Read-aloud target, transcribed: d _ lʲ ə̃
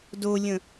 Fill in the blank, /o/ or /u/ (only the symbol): o